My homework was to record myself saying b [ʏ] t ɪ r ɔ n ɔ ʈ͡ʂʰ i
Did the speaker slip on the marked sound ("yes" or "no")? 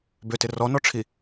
no